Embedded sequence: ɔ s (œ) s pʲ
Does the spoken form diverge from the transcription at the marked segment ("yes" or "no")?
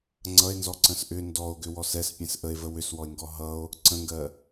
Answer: yes